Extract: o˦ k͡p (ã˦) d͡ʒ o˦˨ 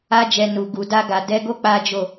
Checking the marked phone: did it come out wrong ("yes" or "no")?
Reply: yes